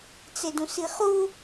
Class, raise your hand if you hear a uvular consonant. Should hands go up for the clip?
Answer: yes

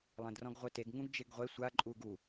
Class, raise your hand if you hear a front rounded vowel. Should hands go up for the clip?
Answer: no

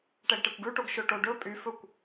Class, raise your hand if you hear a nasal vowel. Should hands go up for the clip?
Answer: no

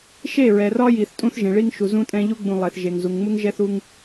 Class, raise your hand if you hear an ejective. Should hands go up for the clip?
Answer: yes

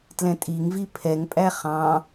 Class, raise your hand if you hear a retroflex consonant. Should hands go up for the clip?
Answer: no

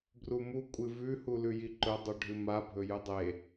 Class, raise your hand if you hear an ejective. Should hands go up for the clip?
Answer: yes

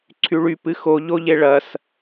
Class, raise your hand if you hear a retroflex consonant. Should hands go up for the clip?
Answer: yes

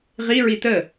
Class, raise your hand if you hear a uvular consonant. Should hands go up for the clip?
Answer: yes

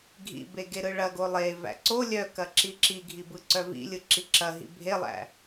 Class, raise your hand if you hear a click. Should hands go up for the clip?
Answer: yes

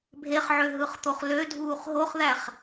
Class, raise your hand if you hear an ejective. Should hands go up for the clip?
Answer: no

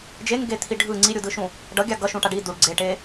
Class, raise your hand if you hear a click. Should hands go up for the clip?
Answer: yes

